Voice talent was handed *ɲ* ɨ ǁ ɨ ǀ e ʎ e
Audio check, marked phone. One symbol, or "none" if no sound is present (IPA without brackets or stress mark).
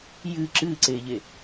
j